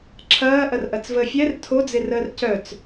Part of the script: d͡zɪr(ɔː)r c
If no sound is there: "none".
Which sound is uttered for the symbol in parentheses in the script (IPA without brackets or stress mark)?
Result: əː